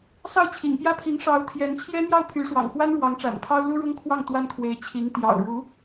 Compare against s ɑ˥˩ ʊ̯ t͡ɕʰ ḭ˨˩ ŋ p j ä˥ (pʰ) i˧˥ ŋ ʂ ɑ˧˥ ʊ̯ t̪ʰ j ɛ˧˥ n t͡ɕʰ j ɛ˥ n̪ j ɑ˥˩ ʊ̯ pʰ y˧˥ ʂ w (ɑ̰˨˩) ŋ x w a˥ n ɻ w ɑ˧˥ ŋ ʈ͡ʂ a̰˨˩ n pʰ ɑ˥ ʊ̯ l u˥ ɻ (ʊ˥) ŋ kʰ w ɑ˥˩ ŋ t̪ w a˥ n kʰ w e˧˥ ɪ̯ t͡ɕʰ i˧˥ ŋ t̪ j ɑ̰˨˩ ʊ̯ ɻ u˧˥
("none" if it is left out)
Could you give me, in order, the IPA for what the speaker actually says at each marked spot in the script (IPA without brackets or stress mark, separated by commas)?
pʰ, ɑ̰˨˩, ʊ˥